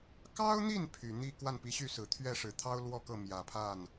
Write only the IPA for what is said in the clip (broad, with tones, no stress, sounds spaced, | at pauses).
k ɑ˥ ʊ̯ n̪ i˥˩ n pʰ y˨˩ n̪ i˥˧ k w a˥˩ n p i˧˥ ɕ y˥˩ s ɹ̩˨˩ t̪ʰ ɥ ɛ˥˩ ʂ ɻ̩˨˩ t̪ʰ ɑ˥ ʊ̯ l w ɔ˥˧ k ɤ˥˩ m j ä˨˩ pʰ a˥˩ n